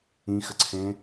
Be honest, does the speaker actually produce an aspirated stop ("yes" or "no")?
yes